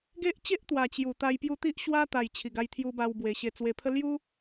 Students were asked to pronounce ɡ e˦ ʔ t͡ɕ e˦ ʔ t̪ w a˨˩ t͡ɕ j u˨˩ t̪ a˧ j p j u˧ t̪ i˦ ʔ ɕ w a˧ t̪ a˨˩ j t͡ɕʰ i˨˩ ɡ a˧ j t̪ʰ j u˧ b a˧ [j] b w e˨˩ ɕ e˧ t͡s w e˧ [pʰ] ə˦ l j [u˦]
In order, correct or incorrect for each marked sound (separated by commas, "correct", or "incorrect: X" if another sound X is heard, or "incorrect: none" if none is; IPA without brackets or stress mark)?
incorrect: w, correct, correct